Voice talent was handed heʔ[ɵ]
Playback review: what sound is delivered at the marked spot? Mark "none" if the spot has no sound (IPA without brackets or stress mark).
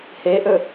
ɵ